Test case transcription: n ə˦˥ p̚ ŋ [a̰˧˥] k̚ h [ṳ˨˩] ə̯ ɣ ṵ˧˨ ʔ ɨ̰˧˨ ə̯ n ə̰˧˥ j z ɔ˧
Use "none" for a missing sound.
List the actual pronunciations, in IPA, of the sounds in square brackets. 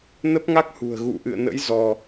a˦˥, ṳ˨˩

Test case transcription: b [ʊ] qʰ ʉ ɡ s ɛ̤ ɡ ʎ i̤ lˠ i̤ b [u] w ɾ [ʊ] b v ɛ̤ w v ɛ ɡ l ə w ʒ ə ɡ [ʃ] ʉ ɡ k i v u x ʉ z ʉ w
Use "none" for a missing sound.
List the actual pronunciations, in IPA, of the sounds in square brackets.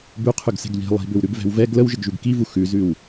ʉ, ʏ, ʉ, ʒ

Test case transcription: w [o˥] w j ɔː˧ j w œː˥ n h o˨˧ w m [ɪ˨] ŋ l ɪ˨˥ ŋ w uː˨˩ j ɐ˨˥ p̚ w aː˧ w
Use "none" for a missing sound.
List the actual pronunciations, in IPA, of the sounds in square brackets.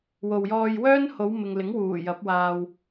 o˨, ɪ˨

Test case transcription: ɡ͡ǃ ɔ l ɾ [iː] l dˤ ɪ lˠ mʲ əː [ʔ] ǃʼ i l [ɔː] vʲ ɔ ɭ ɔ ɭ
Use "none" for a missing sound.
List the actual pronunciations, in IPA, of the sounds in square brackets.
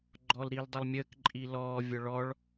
iː, k, ɔː

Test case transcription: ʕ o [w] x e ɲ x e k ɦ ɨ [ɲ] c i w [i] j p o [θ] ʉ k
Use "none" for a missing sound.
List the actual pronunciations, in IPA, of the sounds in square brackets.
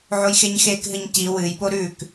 j, ɲ, ɨ, ɾ

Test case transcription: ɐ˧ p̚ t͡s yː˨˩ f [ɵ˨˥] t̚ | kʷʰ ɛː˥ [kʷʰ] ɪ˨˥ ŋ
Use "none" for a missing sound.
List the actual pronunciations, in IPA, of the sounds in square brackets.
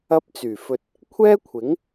ɵ˨, kʷʰ

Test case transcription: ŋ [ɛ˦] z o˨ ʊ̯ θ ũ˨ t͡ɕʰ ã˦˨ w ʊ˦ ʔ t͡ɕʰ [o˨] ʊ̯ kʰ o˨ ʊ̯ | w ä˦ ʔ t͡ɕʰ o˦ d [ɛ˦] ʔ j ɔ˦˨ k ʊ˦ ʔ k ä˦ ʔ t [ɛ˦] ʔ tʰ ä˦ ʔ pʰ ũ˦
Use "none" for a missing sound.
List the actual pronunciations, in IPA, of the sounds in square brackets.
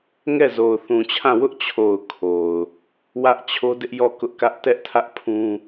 ɛ˦˨, o˨, ɪ˦, ɛ˦

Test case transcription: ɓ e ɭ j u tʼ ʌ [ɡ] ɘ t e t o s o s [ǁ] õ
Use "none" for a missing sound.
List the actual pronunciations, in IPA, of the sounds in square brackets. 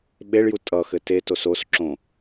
x, ǁ

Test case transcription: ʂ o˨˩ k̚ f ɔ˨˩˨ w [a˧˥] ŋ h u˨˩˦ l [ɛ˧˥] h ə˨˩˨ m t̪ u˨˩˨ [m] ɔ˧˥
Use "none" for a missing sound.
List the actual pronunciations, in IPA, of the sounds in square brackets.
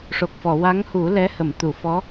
a˧˥, ɛ˧˥, f

